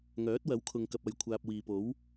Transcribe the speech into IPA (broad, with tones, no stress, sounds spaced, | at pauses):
ŋ œː˨˥ t̚ w ɐ˨˥ w kʰ ʊ˨ ŋ k ɐ˨ p̚ ɐ˨ j kʷʰ aː˨ p̚ w iː˨ p o˨˥ w